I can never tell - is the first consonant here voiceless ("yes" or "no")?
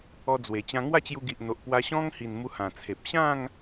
no